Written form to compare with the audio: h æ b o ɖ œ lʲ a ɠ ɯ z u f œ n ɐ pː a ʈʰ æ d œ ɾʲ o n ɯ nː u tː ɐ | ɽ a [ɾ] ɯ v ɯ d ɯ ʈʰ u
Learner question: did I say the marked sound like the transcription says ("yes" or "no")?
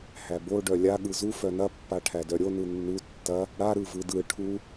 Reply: yes